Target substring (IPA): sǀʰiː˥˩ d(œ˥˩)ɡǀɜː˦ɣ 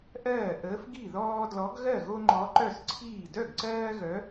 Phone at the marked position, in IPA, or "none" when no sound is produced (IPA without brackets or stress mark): œ˥˩